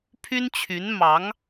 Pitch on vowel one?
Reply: high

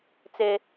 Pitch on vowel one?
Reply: high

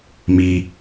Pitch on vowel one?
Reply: low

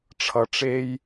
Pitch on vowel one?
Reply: low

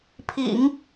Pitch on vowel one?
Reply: low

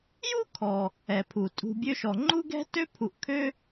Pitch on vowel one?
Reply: high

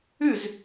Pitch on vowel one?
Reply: falling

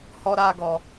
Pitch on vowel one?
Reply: high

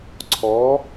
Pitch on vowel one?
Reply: rising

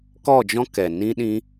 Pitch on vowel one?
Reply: falling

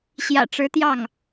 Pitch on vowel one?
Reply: low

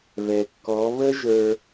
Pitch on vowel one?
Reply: low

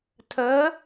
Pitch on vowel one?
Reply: rising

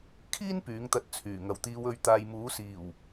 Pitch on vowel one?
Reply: high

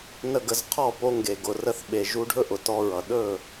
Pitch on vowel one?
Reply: falling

